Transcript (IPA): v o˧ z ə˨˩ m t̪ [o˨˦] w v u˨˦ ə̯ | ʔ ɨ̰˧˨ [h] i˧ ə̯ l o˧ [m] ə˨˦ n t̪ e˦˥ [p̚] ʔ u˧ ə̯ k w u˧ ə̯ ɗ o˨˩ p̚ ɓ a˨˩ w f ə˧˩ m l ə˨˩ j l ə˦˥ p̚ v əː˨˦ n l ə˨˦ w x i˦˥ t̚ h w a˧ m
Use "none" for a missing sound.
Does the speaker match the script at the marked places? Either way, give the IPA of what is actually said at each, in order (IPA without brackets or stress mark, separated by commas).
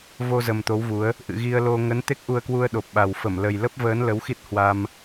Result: o˨˦, ɣ, ŋ, k̚